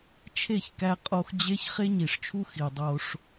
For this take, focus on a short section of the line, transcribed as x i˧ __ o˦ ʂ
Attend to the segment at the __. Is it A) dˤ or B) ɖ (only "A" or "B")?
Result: A